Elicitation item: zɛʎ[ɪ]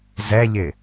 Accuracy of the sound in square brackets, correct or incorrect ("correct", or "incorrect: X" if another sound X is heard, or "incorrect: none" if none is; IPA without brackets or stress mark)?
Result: correct